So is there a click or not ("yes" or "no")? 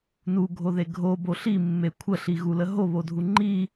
yes